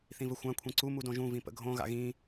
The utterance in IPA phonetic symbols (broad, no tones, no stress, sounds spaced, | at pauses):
θ ĩ v ə xʷ ã kʷʰ ĩ ǀ u m u d õ ʒ ũ v ĩ p ə̰ ɡʱ õ ɣ a̰ ɣ ĩ